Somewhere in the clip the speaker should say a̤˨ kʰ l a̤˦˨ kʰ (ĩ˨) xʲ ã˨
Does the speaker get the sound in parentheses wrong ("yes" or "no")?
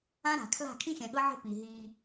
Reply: yes